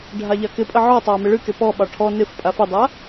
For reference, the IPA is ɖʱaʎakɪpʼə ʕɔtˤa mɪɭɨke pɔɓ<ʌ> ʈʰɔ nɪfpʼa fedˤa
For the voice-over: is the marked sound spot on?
no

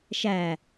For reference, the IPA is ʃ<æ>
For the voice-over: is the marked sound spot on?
yes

